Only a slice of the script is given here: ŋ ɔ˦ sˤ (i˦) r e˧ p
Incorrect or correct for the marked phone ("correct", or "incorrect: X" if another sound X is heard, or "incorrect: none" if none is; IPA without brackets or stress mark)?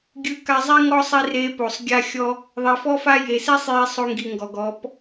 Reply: incorrect: i˧